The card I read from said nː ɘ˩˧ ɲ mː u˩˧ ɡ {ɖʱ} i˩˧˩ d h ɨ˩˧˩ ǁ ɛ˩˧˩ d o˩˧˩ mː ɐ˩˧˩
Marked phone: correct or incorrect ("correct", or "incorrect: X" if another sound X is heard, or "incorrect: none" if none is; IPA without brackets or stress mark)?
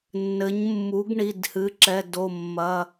incorrect: ɳ